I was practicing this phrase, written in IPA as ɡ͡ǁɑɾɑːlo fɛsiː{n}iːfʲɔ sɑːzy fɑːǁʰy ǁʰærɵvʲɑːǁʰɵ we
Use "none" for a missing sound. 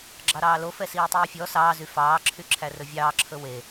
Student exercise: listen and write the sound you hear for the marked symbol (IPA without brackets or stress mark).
tˤ